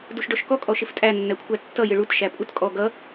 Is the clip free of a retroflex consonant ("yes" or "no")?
no